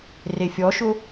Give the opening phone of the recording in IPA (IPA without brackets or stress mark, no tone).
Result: r